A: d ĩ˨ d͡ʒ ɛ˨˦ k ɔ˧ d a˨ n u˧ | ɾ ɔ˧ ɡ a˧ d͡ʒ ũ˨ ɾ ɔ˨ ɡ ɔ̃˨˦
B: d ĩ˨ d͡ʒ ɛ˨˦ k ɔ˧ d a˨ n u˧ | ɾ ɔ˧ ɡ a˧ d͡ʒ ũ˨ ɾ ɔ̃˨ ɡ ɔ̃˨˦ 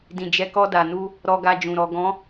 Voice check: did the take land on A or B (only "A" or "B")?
A